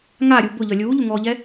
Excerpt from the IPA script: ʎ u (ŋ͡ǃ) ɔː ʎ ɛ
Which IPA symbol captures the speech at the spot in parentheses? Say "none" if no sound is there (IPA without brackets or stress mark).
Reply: ŋ